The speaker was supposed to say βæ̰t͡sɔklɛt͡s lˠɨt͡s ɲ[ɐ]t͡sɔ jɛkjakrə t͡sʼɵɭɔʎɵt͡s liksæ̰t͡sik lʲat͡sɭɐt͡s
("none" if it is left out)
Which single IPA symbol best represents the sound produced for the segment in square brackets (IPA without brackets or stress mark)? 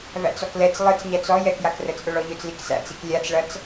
æ